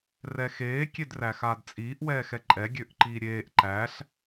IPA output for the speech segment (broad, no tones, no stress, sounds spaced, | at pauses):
r ɛ x eː kʲ e d r æ x aː d t͡sʼ iː ʔ w ɛː x ɛ ǃʼ ɛ ɡʲ ø ʔ ǃ iː ɾʲ eː ʔ ǃ æ ɬ